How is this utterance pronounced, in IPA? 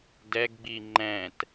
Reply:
d ɛ ɡ ɡ͡b i ŋ͡ǃ ɛ̃ t

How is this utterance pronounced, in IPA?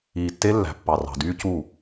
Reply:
iː˨ tː e˦ lː æ̤˨ pː ɑ˨ r ɑ̤˨ d yː˦ c u˦˨

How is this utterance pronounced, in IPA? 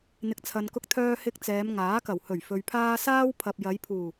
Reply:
n̪ ɪ˨˥ k̚ t͡sʰ ɐ˨ n k ʊ˧ k̚ t̪ʰ œː˧ h ɪ˧ k̚ t͡s ɛː˨˧ m ŋ aː˨˥ k ɐ˨˩ w h ɵ˨˩ ɥ f ɵ˨ ɥ pʰ aː˧ s aː˥ w pʰ ɐ˨ p̚ j ɐ˨˧ j pʰ uː˨˩

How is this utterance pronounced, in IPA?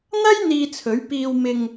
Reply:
n̪ ɐ˥ j n̪ iː˧ t͡sʰ ɵ˨˥ ɥ p iː˧ w m ɪ˧ ŋ

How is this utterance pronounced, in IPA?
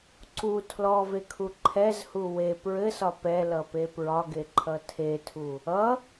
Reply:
ǀ u tʰ l ɔ v e kʰ u ǃʰ ɛ z h u w e p ɹ ɘ s ɒ p ɛ l ʌ p e p ɹ ɒ ɡ e ǃʰ ʌ tʰ e tʰ u | ʌ

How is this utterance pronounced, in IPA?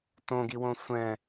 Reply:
t õ ɡ i w õ sʷ ɛ̃

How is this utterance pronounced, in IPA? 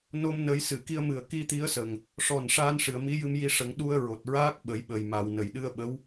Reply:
n o˧ m n ə˧˥ j s ɨ˨˩˨ k i˧ ə̯ m ɨ˨˩ ə̯ k i˧ t̪ i˧˥ ə̯ s ə˨˩ ŋ | ʂ ɔ˨˩ n ʂ aː˧ n ʂ ɨ˨˩˨ ə̯ m i˧˥ j ɨ˧ m j i˧ ʂ ə˨˩˦ ŋ ɗ u˧ ə̯ ɹ o˨˩ t̚ ɹ aː˦˥ k̚ ɓ ə˨˩˦ j ɓ ə˨˩ j m a˨˩˨ w n ə˨˩˨ j ɗ ɨ˧ ə̯ ɓ ə˧˥ w

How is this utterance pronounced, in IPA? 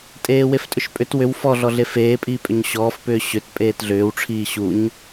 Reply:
tʼ eː w e f tʼ ʏ ʃ pʼ ʏ t w ʏ w f ɔ ɮ ɔ ɮ e f eː pʼ iː pʼ ʏ ɲ ɕ ɔː f p ʏː ɕ ʏ t pʼ eː t ɮ ʏː w ʈ͡ʂʰ iː ɕ u ɲ

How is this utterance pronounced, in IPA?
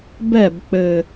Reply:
b ɛ˥˩ b k͡p ɘ˧˩

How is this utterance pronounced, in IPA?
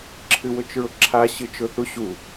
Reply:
ǁʰ ɨ w ʊ t͡ʃ ɹ ʊ ǁʰ a ɕ ɨ t͡ʃ ʊ θ u ɕ u

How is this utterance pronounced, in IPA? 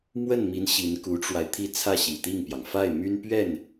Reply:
m w ə˥˩ n m i˧˥ n ɕ i˧˥ n k u˧˥ ʈ͡ʂ w a˧ ɪ̯ t̪ʰ i˥˧ t͡sʰ ä˥˩ ɕ i˨˩ t̪ i˥˩ ŋ p j ɑ˩ ŋ f a˥˩ ɪ̯ m y˥ n p ɥ ɛ˥˩ n

